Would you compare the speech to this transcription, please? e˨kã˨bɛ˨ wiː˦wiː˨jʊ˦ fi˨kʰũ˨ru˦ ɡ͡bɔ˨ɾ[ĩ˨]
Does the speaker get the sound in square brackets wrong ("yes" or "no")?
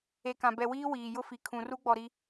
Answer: yes